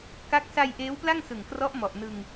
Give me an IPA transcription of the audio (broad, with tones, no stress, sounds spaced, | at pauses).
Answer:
k a˦˥ k̚ s a˧ j ʔ eː˦˥ w p l a˥˩ ŋ s ɯ˨˩ ŋ k r ɔ˦˥ ʔ m ɔ˨˩ ʔ n ɯ˧ ŋ